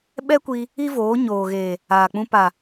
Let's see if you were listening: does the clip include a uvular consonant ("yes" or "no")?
no